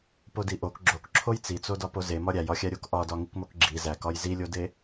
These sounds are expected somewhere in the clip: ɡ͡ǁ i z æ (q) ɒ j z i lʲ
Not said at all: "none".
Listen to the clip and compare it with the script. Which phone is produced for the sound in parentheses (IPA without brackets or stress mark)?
k